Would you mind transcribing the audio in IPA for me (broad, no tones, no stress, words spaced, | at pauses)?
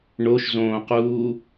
ɳoʃzõːquː